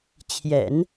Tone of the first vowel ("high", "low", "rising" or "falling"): low